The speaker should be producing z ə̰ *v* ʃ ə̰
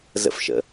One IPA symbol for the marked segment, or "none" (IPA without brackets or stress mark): f